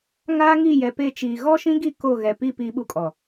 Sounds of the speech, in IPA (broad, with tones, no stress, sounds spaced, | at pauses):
ŋ aː˦ ŋ i˦˨ j ɛ˨ p e˦˨ t͡ʃ iː˨ ɣ ɔ˦ ʃ ĩ˦ ɡ i˦˨ k o˦˨ ɣ ɛ˨ p i˦˨ p iː˦ ɓ u˦ kʼ ɔ˨